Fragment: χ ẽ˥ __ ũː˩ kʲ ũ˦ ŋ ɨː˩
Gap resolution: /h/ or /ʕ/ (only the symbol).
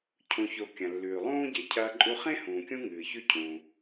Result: h